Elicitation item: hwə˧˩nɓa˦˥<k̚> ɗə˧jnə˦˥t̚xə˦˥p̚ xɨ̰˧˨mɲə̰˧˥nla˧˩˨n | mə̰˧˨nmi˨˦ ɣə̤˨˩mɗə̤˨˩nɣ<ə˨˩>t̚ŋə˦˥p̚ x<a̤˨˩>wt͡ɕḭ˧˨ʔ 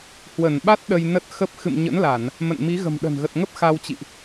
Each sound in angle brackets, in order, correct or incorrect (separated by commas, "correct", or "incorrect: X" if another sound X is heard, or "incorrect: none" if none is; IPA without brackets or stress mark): incorrect: t̚, correct, incorrect: a˧